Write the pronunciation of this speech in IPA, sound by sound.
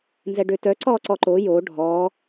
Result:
n z ɛ ɖ ø t œ ǀ ɔ ǀ ɔ ǃ o j o ɖʱ ɔ

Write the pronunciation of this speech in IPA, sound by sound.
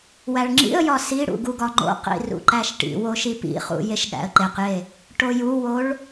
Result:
w æ ɭ ŋ͡ǁ ḭ ə̯ j ɒ s i ɽ ṵ ɡ u ɡ ɒ ŋ͡ǃ o̰ q ḭ r ṵ ǃ æ ʃ ʈ ḭ w o ʃ i p ḭ χ ṵ j e ʃ ɠ æ̰ ə̯ ǃ e q j e | ʈ o j u w o ɭ

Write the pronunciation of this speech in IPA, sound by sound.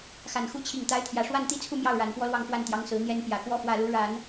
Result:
x a˨˩ n x u˧˥ t͡ɕʰ i˨˩ ŋ t̪ a˧˥ ɪ̯ t̪ʰ j ä˨˩ ʂ w a˥˩ n t̪ i˥ t͡sʰ u˥˧ m j ɑ˥˩ ʊ̯ ɻ a˨˩ n p w ɔ˥ l w ɑ˥˧ ŋ f w a˥˩ n t̪ j ɑ˧˥ ŋ s ɹ̩˧˥ n̪ j ɛ˥ n p j ä˨˩ k w ɔ˥ f w ä˥˩ l u˧˥ ɻ a˨˩˦ n

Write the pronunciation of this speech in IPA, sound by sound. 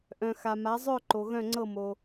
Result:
ʔ œ̃˩ x a˩ m a˩˧ zˤ œ˦˨ ǃ o˩ ɣ œ̃˦˨ ŋ͡ǀ ɤ˦˨ m o˩

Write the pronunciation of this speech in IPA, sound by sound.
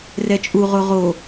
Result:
r ɛ t͡ʃʼ u ʁ o ʁ o

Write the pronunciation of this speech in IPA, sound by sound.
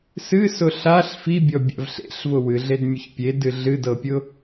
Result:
s ɨ s ʊ ɬ a ɬ f i bʲ ɔ bʲ a̰ v ɬ ḛ ɬ v ʊ w ɨ ɮ e d mʲ ʊ ç pʲ e d ɨ ɮ ɨ d ɤ pʲ ʊ

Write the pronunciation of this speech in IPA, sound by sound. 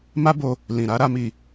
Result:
m a˦ b o˧ | l ĩ˨ ɾ a˨˦ ɾ a˦ m i˦˨

